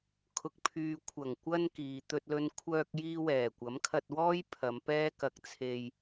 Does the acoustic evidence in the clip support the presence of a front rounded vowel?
yes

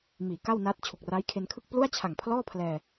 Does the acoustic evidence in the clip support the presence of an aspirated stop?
yes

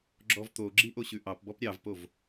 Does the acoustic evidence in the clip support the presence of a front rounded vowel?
no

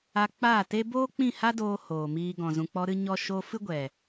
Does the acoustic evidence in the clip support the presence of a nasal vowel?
yes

